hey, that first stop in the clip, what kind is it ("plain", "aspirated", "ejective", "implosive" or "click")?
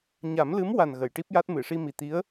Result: plain